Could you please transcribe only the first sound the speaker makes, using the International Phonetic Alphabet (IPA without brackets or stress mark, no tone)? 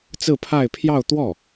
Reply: t͡s